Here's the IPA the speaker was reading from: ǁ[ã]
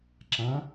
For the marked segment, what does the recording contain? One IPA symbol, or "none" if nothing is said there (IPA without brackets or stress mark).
ã